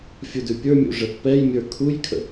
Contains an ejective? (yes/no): no